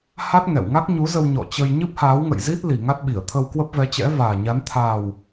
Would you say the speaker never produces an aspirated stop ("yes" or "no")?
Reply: no